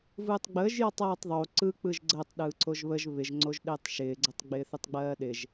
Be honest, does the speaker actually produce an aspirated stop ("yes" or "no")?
no